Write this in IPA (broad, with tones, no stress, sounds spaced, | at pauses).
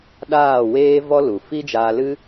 ɗ aː˦˨ w eː˦ v ɔ˦ l u˨ f i˦ d͡ʒ aː˧ l ɨ˦